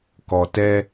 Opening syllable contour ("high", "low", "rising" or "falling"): low